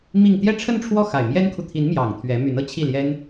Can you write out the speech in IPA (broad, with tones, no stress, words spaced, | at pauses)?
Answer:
mi˥˧ŋ t̪jɛ˥˧ʈ͡ʂʰə˥˧nʈ͡ʂʰwɔ˥˩ xa˨˩ɪ̯mjɛ˥nkʰu˨ t̪ʰi˧˥nmjɑ˨˩ŋ t̪ʰɥɛ˧˥my˧˥n ɤ˥t͡ɕʰi˥˩ljɛ˥n